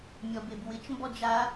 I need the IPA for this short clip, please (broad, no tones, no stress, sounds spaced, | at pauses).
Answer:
mʲ ɔ b e b w ɪ t͡ʃ m b ɔ d͡ʒ a